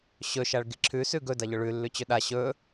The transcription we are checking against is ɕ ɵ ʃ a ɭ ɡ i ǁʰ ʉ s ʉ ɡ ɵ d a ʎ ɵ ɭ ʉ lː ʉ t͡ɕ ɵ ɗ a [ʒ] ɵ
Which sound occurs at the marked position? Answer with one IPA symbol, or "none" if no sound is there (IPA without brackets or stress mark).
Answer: ɕ